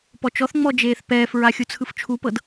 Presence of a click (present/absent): absent